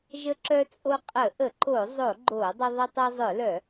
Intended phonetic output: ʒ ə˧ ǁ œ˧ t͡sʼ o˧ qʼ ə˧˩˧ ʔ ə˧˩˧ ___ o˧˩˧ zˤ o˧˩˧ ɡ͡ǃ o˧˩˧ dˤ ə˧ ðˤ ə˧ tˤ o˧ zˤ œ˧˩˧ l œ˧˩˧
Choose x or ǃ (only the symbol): ǃ